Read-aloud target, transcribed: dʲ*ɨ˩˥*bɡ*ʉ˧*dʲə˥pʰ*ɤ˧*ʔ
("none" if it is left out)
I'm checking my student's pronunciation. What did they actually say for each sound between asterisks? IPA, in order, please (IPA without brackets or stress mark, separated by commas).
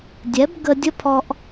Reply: ɛ˩˥, ə˧, ɔ˧